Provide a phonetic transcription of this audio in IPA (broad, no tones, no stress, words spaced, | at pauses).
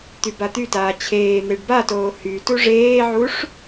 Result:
t̪ybat̪ytaː t͡ɕʰeːn̪eɖ batoː hy tuʐeːʕuʂ